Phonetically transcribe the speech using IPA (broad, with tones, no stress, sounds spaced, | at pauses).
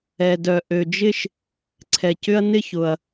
ɛ˩ d œ˩ ʔ ø˩ d͡ʒ ɪ˥ ʃ | ǀʰ ɛ˩ c ʏ˥ ɐ̯ n ɪ˥ ç ʊ˩ ɐ̯